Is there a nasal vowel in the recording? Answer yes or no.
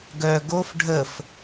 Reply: no